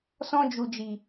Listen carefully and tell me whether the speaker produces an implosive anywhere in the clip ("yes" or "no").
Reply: no